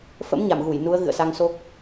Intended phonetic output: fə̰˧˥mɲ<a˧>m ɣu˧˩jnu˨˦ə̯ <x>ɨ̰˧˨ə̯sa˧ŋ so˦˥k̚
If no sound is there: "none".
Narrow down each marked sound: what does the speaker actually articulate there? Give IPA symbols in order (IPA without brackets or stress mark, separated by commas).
a˧˩, ɣ